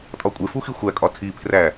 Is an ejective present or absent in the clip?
present